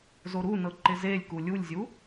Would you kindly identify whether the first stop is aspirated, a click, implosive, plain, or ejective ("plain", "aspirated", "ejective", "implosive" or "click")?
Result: click